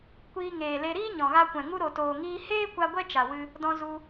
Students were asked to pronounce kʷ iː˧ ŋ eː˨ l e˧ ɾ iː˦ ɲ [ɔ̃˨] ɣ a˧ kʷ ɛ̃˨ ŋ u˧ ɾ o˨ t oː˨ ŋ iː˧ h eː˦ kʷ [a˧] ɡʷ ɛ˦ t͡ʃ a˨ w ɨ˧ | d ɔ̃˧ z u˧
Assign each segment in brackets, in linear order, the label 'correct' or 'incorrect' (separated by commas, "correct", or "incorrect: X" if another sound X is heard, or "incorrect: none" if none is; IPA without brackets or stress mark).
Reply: correct, correct